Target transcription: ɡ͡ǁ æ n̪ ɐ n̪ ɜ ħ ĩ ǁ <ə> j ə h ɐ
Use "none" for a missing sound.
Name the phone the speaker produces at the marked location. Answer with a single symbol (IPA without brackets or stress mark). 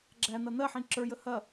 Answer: ə˞